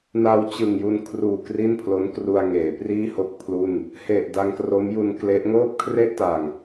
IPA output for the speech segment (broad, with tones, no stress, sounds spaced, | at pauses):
n a˧ w t͡ɕ ɯ˨˩ ŋ j u˧ n kʰ r uː˨˩ k r i˥˩ n pʰ l o˦˥ n k r u˧ a̯ ŋ eː˩˦ p r iː˥˩ h o˥˩ k̚ pʰ l u˥˩ n | h e˨˩ ʔ d a˧ ŋ k r o˦˥ m j u˧ n k l e˦˥ ʔ ŋ oː˥˩ p̚ kʰ r e˥˩ ʔ t a˨˩ ŋ